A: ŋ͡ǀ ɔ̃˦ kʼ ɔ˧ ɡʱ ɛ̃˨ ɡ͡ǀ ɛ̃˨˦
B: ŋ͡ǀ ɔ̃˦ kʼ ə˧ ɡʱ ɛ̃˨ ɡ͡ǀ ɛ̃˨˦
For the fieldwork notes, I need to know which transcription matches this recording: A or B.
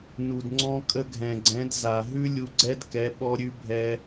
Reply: B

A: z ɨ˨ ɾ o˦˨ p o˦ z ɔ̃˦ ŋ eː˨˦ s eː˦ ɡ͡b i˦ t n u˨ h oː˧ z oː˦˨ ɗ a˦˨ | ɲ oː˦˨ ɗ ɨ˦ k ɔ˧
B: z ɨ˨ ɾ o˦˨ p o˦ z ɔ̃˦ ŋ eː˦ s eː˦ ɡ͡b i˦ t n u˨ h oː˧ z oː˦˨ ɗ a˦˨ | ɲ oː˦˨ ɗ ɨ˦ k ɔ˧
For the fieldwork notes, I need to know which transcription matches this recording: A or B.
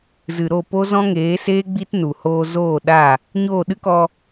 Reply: A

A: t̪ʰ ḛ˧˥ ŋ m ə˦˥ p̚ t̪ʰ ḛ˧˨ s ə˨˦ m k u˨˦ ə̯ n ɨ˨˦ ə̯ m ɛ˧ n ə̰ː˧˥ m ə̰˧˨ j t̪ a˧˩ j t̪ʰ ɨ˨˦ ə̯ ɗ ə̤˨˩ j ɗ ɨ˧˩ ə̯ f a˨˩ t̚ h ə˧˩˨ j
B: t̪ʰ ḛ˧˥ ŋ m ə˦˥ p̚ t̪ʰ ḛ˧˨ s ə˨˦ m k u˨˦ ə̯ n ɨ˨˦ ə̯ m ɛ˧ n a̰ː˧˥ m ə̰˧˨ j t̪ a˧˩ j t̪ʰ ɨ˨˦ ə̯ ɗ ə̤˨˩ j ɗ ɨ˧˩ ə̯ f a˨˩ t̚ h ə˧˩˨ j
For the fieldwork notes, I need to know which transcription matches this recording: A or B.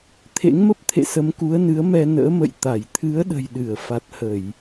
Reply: A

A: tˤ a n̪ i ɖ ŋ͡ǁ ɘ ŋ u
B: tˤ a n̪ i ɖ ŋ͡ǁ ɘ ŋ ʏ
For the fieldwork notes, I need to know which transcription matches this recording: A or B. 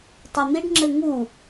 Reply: A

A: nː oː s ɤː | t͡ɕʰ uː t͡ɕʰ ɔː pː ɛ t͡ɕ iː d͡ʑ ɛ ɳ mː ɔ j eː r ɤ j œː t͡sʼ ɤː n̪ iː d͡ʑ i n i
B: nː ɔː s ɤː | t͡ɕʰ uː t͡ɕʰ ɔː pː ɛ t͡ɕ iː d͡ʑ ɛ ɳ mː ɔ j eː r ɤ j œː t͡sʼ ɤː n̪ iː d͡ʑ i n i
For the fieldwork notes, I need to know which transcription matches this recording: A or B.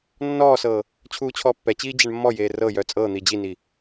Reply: B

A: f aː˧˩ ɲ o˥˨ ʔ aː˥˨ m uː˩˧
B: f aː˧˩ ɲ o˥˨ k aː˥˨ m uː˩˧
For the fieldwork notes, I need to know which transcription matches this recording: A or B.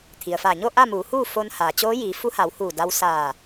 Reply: A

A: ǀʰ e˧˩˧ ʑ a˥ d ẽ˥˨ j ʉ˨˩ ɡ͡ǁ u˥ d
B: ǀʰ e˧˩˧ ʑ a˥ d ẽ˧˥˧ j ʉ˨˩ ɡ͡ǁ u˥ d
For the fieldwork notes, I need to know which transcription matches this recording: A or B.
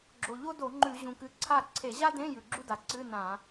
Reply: B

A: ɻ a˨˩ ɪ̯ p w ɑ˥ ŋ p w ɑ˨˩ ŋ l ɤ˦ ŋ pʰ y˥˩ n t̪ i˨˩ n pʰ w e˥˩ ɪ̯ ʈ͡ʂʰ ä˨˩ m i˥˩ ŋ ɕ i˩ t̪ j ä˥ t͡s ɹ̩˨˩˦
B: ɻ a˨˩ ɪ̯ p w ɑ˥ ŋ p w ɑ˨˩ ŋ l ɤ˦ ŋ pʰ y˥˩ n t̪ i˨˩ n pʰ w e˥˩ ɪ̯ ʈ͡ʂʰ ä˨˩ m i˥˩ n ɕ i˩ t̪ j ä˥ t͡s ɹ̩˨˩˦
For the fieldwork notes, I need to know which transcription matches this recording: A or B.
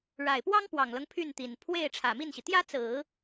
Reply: B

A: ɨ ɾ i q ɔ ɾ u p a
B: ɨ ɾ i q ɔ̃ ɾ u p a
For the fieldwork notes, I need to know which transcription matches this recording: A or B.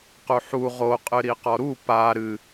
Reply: A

